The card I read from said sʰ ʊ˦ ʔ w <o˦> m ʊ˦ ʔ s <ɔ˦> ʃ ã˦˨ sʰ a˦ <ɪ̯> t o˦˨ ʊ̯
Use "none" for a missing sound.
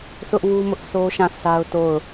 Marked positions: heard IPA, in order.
u˦, o˦, ʊ̯

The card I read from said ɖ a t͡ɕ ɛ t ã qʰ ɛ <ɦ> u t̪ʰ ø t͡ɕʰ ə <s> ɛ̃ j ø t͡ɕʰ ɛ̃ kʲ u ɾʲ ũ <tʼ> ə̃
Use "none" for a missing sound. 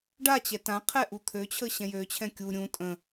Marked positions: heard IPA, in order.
ʔ, ɕ, tʼ

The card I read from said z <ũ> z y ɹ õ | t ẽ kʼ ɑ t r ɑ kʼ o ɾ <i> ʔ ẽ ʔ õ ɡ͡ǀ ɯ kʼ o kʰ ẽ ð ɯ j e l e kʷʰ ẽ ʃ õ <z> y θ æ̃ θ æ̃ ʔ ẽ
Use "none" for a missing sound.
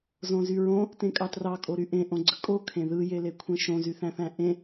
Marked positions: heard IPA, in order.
õ, y, z

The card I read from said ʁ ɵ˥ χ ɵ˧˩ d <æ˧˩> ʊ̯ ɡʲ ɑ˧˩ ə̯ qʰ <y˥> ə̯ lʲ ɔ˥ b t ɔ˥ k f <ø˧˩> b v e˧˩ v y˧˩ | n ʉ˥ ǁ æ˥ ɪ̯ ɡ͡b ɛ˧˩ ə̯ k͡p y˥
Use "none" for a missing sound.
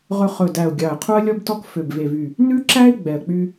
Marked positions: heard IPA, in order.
æ˧˩, u˥, ø˧˩

